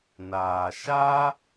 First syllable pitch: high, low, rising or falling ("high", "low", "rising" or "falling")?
low